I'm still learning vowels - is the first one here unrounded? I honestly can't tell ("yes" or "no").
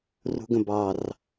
no